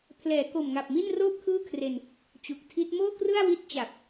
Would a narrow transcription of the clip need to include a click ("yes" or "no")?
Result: no